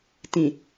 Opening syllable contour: low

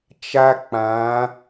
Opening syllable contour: high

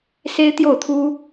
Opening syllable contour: high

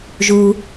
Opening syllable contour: low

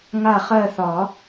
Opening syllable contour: falling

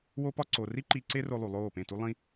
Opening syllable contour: high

